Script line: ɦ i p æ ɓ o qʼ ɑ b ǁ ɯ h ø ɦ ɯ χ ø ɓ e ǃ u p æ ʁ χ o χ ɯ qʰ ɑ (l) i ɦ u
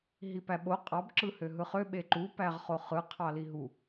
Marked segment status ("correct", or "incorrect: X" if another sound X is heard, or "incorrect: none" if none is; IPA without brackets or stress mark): correct